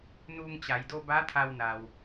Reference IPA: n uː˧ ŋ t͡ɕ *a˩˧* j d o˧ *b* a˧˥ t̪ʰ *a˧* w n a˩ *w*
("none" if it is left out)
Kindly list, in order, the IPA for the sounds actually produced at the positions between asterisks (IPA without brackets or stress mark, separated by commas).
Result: a˩˧, b, a˧, w